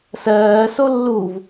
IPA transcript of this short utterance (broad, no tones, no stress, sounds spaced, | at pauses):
s ɜː s o lː u v